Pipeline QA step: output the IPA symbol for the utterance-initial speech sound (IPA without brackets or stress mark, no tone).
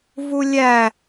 v